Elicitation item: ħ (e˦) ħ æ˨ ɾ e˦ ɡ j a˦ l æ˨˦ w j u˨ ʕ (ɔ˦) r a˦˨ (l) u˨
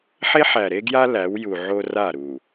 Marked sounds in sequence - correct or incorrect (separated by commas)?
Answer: correct, incorrect, incorrect